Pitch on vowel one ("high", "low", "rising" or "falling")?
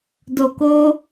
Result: low